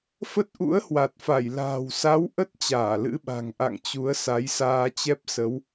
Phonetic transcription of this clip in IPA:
fə˦˥t̚ʔṵ˧˥ə̯hwa˨˩t̚fa˧˩j la̤ː˨˩wsa˨˦w ʔə˦˥t̚ t͡ɕaː˧˩lɨ̰˧˥ɓa̤˨˩ŋʔa̰˧˨ŋ t͡ɕu˨˦ə̯sa˨˦jsaː˧ t͡ɕɛ˦˥p̚ sə˨˦w

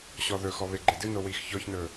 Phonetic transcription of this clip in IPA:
ɕɔðɵxɔ βeɡ͡ǃedɨno wixçɔçnɵ

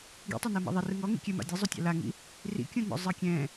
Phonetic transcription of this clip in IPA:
ɡḭtˤɛnɜma̰ ðˤerɯ ŋɔŋḭ kʲɛma̰ dʲɛzˤutʲa̰ laŋḭ | rḭkʲũnɔ̰zˤɜ kʲɛ̃

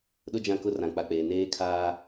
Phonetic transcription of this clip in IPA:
ɗʊ˦d͡ʒã˦˨kʊ˦ rã˨k͡pa˨k͡peː˨ neː˦kʰaː˦

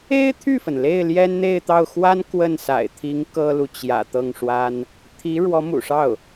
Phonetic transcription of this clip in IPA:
e˥ɪ̯t̪ʰy˥˩fə˩n le˥˩ɪ̯ljɛ˥nn̪e˥˧ɪ̯t̪ɑ˥˩ʊ̯ xwa˥n kwə˥˩nsa̰˨˩ɪ̯t̪ʰi˧˥ŋ kɤ˥lu˨t͡ɕjä̰˨˩ t̪ɤ˥˩ŋʂwa˥n | t̪ʰi˧˥ ɻwɔ˧˥mṵ˨˩ʂɑ˥˩ʊ̯

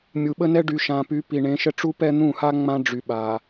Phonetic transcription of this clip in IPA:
mʲu˨ɓə˦nɛ˦ ɖy˨ʃã˨py˨˦ pi˨ɳẽ˨˦ʃə˦ ʈ͡ʂu˦pɛ˦n̪ũ˦˨ha˦ ŋ͡mã˦ ɖ͡ʐy˨ɓa˨

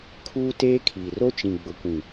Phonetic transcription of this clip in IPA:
kʰuː˦ teː˦kʰiː˨ ro˦t͡ʃĩ˨ ɡ͡bʊ˨kʷĩ˨

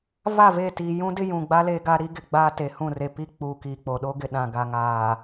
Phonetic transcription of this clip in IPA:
va˦˨ve˦˨tiː˨ jũ˦dɪ˦jũ˨ɡ͡ba˦ le˦ɡa˦ ɾi˦ɡɪ˨ɡ͡baː˦ te˨ hũ˦˨re˨pi˦k͡puː˨ kiː˨k͡po˨ ɗo˦ɡɪ˨ɗã˨ɡa˨ ŋaː˨

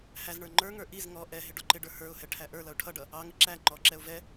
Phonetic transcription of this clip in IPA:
hæzɳə˞ ŋ͡ǃə˞ŋə˞ ʔiz ŋɔ ʔɛɦɪ ɖɔǃɪɖə˞ hə˞ʊ̯hɛ ʈʰæʔə˞lʌʊ̯ ʈʰʌɖʌ | ɑŋɪ ǁæ ŋ͡ǃɔǁɛʊ̯ vɛ

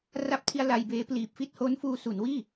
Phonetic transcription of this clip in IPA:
ra˦˥p̚tʰi˧a̯ la˧jbeː˦˥pliː˨˩p̚ fi˥˩t̚ho˦˥n fuː˧su˩˦nwiː˥˩

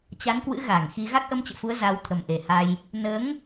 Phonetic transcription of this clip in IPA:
t͡ɕa˨˦nkwɨ̰˧˥ ɣa˧˩ŋxi˧ ɣa˦˥k̚ʔə˧mt͡ɕə̰ː˧˨fu˨˦ə̯ za˨˦wt̪ʰə˨˩mʔe˨˩ ha˧j | nəː˨˦ŋ

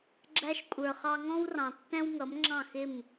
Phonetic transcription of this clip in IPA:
ɡ͡ǁæ˧ʃkʷʼə˞˩ χɑ˧ŋɔ̃˥wrɑ̃˩tːɛ̃˥w ŋʌ˩˥mŋ͡ǁɑ̃˥˩xɪ˥˩m

